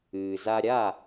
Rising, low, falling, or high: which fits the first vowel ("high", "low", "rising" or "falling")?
low